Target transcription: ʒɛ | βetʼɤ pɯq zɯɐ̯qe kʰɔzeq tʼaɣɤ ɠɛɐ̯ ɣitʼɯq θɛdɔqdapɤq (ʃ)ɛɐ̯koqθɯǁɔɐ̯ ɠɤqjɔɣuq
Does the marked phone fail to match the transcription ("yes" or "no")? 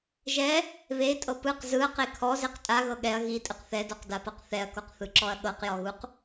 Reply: yes